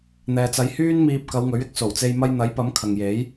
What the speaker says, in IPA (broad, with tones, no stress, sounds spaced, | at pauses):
n̪ ɛː˨ t͡s ɐ˨˧ j h yː˥ n m iː˧ p̚ k ɐ˨˧ w ŋ ɵ˨˥ ɥ ɪ˥ k̚ s o˨˩ w t͡s e˧ j m ɐ˧ j n̪ ɐ˨˥ j p ɐ˨˥ m kʰ ɐ˨ ŋ j e˨˥ j